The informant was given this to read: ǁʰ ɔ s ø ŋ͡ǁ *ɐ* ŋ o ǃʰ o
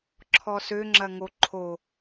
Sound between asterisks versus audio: correct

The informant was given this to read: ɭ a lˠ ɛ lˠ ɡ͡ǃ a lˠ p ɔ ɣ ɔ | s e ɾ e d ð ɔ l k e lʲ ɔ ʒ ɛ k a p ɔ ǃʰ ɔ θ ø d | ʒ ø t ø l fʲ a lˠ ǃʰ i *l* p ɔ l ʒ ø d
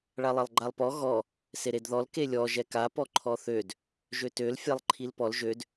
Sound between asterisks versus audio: correct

